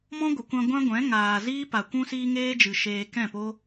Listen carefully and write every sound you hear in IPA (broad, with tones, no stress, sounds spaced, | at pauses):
m ɔ̃˦ ɡʷ ə˨ kʷ ã˧ ɡʷ ã˦ ɡʷ ɛ̃˨˦ ŋ aː˨ z iː˦ p a˨ kʷ ũ˧ s iː˧ ŋ eː˦ d͡ʒ ɨ˨ ʃ eː˧ k ɛ̃˦˨ p o˦